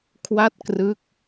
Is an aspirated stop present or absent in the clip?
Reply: present